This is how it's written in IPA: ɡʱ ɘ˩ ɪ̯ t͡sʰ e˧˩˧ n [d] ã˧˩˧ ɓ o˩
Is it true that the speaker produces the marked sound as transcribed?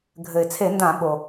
yes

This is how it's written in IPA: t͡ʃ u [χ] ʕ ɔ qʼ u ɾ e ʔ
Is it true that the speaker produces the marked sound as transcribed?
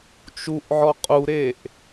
no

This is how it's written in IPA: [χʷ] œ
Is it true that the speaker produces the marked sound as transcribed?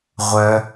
no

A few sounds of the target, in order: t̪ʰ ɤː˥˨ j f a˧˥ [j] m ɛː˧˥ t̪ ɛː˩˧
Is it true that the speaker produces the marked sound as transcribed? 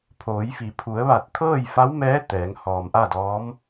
no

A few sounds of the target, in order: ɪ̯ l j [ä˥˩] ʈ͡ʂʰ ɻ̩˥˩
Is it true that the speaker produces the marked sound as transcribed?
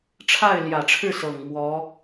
no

